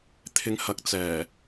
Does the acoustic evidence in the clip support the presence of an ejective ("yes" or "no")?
no